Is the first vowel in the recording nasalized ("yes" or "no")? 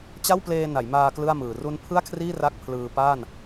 no